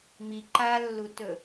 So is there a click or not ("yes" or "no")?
yes